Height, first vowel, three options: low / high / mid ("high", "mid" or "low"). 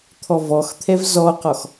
mid